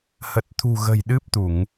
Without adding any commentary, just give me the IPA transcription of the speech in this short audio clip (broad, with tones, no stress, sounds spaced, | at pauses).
h ə˨˩ t̚ t̪ʰ ṳ˨˩ ɣ ə̤˨˩ j ɗ ɨ˦˥ p̚ t̪ u˧˩˨ ŋ